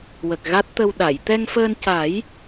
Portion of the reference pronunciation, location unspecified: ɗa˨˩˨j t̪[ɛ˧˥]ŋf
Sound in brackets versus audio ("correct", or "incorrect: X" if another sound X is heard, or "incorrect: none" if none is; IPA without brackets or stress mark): incorrect: ɛ˧